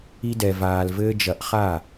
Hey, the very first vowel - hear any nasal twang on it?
no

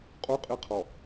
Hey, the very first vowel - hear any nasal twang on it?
no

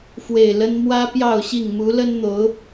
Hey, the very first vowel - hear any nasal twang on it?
no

